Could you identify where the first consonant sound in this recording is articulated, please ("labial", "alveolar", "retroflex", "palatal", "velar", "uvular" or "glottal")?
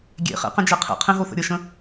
velar